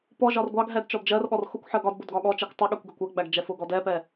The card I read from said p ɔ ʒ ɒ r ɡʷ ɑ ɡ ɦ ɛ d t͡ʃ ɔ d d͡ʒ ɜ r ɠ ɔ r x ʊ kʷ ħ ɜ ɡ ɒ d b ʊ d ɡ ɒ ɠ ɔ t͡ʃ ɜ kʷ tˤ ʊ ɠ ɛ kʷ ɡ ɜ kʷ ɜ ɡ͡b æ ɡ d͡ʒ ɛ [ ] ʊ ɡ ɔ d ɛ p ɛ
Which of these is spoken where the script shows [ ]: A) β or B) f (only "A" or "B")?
B